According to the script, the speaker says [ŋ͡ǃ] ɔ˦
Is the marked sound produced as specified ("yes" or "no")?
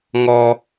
no